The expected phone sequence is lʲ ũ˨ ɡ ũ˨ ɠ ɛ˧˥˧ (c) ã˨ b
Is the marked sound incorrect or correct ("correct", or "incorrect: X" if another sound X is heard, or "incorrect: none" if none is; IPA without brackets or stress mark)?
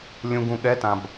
incorrect: t